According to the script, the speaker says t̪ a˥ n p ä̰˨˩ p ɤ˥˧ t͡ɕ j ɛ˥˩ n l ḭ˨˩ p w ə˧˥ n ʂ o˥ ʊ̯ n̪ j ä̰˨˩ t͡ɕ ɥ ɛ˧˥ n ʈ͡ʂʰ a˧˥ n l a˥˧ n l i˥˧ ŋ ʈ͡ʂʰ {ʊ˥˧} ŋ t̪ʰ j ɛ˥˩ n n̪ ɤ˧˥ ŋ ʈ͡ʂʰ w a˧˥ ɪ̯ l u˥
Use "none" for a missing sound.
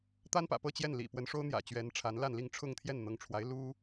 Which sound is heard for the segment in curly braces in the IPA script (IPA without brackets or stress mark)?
ʊ˥˧